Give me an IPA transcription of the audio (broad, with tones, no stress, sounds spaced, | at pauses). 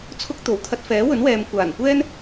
t͡sʰ ʊ˥ k̚ t̪ o˨˩ w t̪ʰ ɐ˧ t̚ f ɛː˨˥ w ɵ˨˥ n w ɛː˨ m kʷ aː˨˩ n kʷ ɛː˥ n